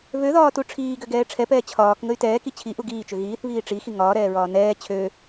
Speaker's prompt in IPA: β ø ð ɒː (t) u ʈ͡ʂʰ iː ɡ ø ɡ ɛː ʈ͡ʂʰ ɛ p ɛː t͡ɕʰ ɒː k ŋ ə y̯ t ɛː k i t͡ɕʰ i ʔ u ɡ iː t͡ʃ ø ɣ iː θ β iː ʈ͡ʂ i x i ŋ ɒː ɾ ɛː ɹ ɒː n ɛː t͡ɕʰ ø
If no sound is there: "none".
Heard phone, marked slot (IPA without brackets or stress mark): t